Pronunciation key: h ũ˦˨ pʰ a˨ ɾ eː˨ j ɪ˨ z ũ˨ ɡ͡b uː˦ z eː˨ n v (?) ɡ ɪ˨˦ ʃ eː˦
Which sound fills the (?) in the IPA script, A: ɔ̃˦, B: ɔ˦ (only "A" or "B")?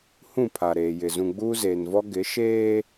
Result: B